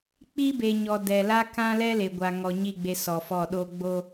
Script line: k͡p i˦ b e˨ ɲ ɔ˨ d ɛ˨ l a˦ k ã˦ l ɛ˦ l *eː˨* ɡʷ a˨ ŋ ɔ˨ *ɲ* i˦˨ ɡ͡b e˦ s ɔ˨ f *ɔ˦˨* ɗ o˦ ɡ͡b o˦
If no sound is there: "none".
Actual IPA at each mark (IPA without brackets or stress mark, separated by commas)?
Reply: e˨, ɲ, ɔ˦˨